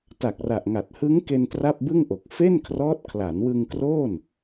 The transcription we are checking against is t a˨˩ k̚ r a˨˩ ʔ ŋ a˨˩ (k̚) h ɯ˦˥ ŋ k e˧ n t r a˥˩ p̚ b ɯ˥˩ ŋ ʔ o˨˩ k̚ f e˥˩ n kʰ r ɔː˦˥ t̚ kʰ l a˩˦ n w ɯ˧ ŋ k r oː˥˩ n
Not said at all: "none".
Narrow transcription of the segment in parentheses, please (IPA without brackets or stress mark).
t̚